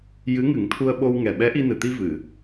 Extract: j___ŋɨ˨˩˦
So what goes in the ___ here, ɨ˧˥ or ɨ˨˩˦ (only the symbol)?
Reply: ɨ˧˥